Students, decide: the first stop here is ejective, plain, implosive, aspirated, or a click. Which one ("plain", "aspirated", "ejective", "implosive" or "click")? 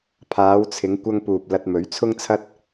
aspirated